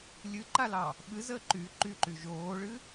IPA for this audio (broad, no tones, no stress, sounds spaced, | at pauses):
lʲ ɨ ǃ a l ɑ | ɓ ɨ z əː ǃ y ǃ y ǃ y ʒ oː ɭ ɨ